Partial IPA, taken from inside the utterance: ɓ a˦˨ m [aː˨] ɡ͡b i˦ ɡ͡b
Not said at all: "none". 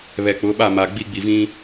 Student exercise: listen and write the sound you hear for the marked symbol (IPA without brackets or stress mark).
a˨